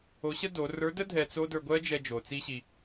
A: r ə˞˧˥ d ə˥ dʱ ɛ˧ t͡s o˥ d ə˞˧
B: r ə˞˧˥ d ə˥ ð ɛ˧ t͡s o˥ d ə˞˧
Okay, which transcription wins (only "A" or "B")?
A